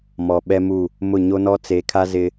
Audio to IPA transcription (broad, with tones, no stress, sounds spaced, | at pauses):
m ɔ˨ ɓ ɛ˦ m u˦˨ | m ʊ˦˨ ɲ o˦ n ɔ˦ t͡s e˨˦ kʰ a˦ z ɪ˦